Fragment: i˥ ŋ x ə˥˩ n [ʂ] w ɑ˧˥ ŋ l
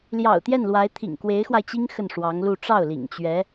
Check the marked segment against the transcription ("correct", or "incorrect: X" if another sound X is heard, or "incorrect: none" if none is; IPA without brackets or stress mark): correct